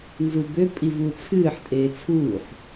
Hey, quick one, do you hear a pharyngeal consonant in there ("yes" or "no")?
yes